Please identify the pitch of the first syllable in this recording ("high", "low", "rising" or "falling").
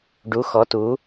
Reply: rising